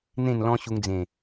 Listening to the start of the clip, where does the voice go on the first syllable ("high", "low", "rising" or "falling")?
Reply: falling